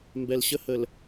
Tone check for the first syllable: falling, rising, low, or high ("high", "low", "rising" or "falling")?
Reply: low